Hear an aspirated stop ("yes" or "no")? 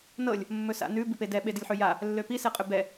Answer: no